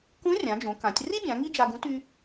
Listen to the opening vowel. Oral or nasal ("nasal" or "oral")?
nasal